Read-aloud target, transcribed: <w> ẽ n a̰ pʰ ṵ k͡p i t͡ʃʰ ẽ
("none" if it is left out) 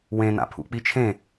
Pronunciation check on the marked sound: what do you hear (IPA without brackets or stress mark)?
w